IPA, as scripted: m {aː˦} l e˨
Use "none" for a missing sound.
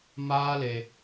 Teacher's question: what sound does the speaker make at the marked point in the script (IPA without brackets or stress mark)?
aː˦